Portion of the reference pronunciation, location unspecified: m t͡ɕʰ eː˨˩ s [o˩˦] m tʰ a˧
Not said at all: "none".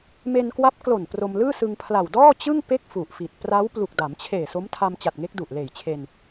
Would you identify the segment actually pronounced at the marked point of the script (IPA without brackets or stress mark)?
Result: o˦˥